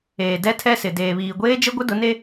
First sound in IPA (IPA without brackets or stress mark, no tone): eː